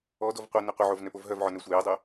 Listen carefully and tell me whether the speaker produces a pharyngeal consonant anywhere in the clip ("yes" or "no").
yes